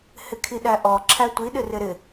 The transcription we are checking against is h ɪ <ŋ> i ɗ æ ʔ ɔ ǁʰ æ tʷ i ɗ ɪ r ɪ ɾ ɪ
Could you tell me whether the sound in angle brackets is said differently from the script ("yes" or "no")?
yes